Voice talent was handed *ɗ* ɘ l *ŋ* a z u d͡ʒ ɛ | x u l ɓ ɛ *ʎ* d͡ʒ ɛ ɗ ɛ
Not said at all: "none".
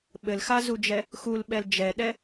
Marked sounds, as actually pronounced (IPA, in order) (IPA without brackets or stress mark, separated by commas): ɓ, x, l